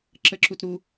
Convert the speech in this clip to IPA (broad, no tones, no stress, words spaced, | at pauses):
ǁəǁutɾu